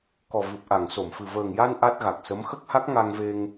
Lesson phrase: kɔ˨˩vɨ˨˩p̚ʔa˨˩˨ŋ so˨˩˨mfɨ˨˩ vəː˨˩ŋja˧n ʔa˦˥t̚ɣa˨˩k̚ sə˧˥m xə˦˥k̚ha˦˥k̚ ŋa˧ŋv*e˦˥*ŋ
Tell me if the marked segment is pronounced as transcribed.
no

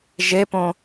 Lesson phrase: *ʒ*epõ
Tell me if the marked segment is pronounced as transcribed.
yes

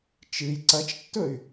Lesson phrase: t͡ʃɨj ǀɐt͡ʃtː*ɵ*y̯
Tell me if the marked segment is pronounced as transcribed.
yes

